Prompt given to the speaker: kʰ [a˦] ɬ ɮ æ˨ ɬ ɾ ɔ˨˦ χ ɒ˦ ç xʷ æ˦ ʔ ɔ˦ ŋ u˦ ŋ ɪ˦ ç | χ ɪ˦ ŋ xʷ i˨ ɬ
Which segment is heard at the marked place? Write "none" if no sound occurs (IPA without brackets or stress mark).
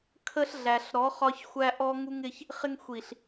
ə˦